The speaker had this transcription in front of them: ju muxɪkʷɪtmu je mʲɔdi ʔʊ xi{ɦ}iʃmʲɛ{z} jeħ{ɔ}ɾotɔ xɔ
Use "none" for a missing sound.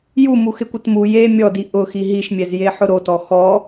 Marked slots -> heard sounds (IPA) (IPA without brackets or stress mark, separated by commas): ɦ, z, ʊ